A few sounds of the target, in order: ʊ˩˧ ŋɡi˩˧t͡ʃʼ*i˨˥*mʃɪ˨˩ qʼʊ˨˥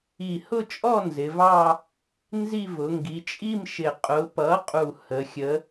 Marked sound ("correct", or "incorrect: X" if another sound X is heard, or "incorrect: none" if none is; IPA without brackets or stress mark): incorrect: i˥˧